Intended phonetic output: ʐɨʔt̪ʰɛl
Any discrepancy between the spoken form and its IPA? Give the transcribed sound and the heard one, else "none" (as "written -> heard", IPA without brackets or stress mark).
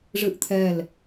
none